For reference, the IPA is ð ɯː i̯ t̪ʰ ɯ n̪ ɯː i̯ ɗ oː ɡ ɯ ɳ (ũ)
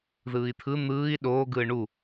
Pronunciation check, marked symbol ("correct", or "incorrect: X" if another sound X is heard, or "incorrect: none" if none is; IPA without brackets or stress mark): incorrect: u